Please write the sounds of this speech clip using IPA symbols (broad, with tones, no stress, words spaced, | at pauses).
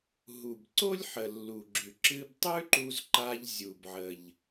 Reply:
ɦu˩b ǀo˥lʲħə˩lːu˩ɡ͡ǁʉ˩ ǁɨ˧btˤʉ˥ǃu˧z ǃa˧ʎ zʲu˩bʕə˩ʎ